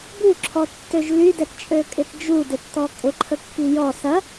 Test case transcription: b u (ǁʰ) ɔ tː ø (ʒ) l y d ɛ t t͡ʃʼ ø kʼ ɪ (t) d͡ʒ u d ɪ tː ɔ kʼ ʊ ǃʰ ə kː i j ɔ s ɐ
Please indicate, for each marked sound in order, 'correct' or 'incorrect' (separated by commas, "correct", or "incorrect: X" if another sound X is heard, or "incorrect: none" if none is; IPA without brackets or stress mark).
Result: correct, correct, correct